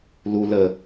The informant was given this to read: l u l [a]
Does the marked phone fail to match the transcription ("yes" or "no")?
yes